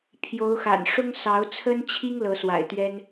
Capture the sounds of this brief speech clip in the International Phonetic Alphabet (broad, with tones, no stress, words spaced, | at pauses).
pʰjo˨˦ʊ̯xa̰˨˩nʂʊ˦ŋ sɑ˨˦ʊ̯t͡sʰə˦nt͡ɕʰi˦ŋ lɤ˨˦swa̰˨˩ɪ̯t̪ɥɛ˦n